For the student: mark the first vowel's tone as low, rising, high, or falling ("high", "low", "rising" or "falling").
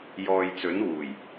low